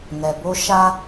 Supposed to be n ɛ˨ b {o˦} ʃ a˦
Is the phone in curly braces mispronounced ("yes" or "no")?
no